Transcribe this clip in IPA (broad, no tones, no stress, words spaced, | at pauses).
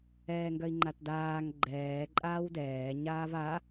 ɛːŋɡœi̯ŋ͡ǃatdaːŋ ɡ͡ǃɛː ǃʼaːwdɛː ɲaːva